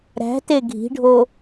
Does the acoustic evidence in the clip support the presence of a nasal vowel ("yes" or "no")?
no